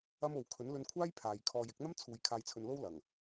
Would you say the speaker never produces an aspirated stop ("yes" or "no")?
no